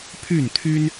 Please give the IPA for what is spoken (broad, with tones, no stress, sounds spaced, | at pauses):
pʰ y˥˨ n t̪ʰ y˦ n